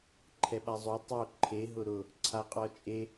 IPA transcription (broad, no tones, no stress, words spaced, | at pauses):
ǃʰɛɓazˤo tˤo ǃʰe ɦʊɾʊ | ǀʰaqʼɔt͡ʃʼe